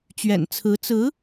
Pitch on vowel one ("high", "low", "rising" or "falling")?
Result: low